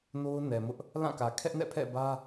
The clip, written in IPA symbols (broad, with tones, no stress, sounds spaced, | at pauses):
n o˦ ʊ̯ n ɛ˨ m ʊ˦ ʔ | l ã˦˨ k ä˨ kʰ ɛ˦ ʔ n ɛ̰˦˨ pʰ ɛ̰˦˨ b ä˦